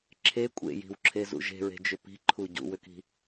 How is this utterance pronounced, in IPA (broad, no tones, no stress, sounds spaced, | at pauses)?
ǁʰ e kʷʼ ḛ j i̤ w ǁʰ e z ṵ ʒ e̤ ɹ e̤ d͡ʒ ʏ p i̤ ǃʰ u ɟ ṵ w ʏ k i̤